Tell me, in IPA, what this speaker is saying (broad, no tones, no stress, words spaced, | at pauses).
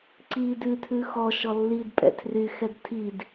ǀiːdʉtʰʉ xɔ ʃɔlːidpʼɛ̰ tʰryxɛd tʰid